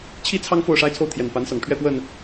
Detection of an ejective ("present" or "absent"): absent